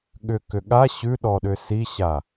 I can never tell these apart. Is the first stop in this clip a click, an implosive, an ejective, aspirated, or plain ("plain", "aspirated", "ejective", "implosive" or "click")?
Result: implosive